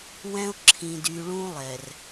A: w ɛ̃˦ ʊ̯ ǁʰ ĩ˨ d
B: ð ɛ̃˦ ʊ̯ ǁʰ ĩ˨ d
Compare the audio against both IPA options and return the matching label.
A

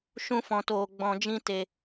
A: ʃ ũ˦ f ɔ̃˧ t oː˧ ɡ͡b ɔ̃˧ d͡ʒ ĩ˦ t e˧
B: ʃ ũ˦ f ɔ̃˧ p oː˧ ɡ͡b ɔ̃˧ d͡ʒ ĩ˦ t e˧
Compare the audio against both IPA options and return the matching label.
A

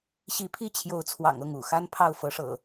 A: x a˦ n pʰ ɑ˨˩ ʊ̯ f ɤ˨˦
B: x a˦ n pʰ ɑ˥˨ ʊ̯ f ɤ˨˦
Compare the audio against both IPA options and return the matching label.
B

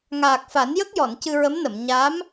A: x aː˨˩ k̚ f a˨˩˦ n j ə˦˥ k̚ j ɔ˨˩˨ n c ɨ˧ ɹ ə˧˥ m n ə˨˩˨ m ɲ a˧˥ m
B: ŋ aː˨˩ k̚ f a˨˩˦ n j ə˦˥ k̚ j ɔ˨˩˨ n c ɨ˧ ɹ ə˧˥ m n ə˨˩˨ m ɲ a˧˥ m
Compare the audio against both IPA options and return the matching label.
B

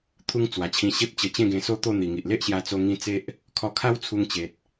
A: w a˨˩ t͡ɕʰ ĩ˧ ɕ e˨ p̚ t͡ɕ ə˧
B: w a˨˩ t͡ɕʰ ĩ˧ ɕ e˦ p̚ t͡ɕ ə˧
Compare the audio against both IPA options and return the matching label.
B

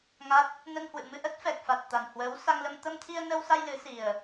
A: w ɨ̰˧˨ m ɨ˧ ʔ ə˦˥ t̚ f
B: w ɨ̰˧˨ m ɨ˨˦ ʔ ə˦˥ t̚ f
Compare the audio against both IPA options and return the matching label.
A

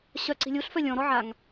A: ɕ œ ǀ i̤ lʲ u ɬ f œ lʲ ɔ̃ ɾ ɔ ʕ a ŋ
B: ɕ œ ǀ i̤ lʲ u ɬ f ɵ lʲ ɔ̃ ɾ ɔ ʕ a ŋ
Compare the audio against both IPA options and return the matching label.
A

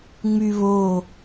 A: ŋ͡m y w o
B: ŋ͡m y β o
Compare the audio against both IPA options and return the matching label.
B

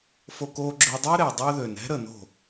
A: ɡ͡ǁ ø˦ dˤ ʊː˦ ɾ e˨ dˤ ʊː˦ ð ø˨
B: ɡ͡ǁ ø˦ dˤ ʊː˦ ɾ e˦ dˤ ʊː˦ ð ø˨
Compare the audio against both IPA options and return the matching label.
A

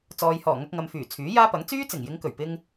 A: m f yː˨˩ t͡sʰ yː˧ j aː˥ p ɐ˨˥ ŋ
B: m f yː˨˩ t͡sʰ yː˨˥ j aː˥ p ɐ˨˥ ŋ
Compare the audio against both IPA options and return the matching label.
B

